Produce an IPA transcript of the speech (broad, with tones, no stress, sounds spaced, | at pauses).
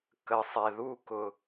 k ə˩ sˤ e˩ ð u˧ k ʊ˩